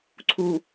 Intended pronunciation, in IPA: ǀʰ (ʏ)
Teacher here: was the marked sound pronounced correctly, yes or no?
no